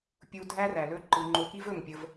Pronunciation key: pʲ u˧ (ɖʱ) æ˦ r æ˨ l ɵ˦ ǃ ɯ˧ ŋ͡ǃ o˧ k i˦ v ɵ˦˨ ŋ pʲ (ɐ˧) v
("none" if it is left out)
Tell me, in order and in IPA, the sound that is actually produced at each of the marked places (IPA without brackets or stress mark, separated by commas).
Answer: dʱ, ə˧